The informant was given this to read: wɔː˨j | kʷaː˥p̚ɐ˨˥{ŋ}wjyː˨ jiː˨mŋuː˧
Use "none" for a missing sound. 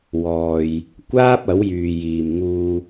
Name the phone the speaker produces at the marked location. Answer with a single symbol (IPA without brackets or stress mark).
none